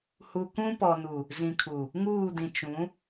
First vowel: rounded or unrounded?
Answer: rounded